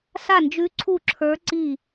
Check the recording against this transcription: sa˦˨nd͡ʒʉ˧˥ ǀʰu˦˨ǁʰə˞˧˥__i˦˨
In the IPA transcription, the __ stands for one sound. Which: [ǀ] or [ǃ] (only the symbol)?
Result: ǀ